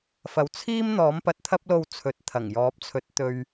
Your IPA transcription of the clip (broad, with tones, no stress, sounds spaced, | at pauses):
f ɐ˨˥ w t͡sʰ iː˥ m n̪ ɔː˨˥ m p ɐ˨ t̚ t̪ʰ ɐ˥ p̚ l o˧ w t͡sʰ ɵ˨˥ t̚ t̪ʰ ɐ˨˩ ŋ j ɔː˨˥ p̚ t͡sʰ ɵ˨˥ t̚ t̪ ɵ˨ ɥ